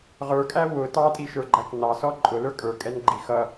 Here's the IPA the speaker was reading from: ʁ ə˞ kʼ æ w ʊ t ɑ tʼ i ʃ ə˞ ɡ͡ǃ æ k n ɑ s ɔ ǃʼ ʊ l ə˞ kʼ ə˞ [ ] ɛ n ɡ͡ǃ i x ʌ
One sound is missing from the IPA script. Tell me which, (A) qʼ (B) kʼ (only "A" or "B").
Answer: B